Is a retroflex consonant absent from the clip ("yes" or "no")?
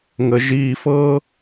yes